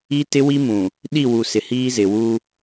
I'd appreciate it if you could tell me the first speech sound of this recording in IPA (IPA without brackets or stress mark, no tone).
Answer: i